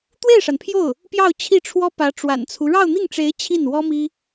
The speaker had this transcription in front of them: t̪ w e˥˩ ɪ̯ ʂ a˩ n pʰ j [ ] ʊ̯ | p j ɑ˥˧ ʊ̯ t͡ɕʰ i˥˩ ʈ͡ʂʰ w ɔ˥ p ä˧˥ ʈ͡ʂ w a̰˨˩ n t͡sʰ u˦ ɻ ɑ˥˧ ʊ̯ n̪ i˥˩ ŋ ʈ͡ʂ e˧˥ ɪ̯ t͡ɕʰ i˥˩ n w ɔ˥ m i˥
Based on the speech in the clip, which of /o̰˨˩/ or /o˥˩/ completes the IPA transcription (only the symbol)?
o˥˩